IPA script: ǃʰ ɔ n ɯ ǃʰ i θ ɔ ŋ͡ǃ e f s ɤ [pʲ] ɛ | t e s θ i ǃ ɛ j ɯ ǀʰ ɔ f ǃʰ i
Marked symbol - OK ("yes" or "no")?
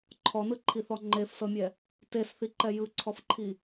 no